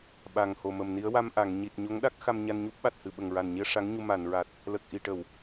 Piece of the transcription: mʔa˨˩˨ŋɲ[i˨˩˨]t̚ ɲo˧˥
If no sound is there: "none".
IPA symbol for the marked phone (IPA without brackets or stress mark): i˨˩